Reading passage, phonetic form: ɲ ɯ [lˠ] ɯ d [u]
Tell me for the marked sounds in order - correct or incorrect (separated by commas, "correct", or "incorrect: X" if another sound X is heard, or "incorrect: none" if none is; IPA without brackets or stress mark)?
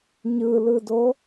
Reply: incorrect: l, incorrect: o